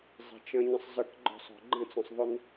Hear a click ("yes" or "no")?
yes